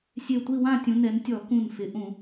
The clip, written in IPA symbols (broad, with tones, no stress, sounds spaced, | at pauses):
sʲ e˧˩ tʷ i˥˨ w ã˥˨ tʲ ũ˩˧ n ɛ˩˧ n tʲ ɔ˧˩˧ k ũ˧˩ n f ɪ˩˧ ʔ ũ˧˩˧